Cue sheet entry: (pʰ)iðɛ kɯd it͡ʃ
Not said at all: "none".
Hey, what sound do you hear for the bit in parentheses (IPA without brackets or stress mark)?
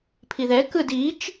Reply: pʰ